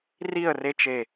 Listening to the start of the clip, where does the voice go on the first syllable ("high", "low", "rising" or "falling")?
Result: falling